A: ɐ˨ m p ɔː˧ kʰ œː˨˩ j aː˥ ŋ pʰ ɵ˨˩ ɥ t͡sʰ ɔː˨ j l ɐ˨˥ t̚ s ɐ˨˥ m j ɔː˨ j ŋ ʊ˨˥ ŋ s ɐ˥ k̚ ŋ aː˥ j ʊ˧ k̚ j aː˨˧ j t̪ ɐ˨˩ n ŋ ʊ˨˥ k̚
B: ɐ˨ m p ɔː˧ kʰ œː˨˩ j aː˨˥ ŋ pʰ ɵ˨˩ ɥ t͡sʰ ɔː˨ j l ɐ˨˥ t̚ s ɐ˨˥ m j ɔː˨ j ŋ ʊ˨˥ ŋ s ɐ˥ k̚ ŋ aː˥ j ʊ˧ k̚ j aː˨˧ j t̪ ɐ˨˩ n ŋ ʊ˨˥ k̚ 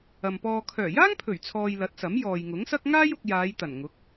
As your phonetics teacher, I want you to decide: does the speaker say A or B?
A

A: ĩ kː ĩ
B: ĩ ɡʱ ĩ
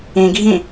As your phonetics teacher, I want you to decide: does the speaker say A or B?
B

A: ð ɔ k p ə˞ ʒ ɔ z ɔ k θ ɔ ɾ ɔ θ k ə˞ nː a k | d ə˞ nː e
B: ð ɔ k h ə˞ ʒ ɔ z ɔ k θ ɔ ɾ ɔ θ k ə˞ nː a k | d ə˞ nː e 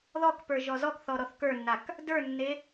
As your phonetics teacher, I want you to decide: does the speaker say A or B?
A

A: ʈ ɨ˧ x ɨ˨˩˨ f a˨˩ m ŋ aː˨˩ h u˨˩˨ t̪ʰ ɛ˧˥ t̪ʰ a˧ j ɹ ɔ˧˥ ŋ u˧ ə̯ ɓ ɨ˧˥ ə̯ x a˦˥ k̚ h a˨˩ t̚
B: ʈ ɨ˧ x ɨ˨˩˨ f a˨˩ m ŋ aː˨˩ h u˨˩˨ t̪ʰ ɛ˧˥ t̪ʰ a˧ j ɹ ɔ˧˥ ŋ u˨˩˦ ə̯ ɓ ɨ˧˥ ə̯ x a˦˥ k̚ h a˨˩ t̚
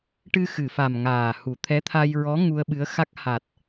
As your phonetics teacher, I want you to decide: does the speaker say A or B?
A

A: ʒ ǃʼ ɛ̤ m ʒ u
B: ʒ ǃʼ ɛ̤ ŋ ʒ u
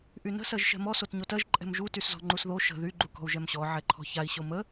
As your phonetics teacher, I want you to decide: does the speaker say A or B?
A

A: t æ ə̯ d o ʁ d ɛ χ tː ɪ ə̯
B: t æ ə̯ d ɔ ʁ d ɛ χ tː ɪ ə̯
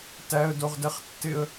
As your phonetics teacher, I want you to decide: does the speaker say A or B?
A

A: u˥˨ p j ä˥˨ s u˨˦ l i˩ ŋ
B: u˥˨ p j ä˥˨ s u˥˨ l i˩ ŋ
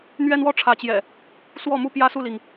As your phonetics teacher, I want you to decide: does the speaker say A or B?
B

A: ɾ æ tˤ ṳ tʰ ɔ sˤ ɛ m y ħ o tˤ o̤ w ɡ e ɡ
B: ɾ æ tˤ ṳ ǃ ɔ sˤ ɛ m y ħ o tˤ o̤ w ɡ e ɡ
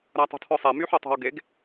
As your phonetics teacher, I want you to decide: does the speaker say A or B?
A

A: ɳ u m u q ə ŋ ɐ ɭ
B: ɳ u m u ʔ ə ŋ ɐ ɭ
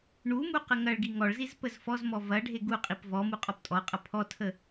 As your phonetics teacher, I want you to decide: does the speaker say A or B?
A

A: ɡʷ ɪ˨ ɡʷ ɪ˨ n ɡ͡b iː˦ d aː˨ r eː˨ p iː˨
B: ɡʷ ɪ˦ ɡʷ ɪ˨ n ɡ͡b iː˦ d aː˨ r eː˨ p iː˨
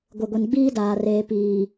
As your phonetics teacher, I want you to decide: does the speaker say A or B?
A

